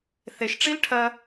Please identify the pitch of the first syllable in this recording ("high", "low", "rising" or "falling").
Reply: low